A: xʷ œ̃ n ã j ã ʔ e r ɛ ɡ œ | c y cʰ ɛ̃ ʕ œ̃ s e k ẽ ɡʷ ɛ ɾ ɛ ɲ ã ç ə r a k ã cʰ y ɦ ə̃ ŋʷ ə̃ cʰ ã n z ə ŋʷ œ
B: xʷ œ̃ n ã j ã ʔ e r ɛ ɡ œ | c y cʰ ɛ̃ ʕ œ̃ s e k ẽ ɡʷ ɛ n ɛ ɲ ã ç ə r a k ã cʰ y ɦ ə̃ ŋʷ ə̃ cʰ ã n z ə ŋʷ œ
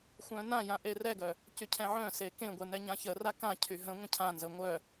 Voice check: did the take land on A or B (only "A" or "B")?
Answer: B